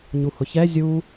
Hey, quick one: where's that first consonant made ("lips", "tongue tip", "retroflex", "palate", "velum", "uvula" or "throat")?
palate